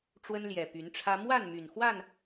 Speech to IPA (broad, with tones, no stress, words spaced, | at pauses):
ʈ͡ʂwə˦nljɛ˨˩ py˨˦nʈ͡ʂʰä˦ mwa˥˨n my˨˩n xwa˥˨n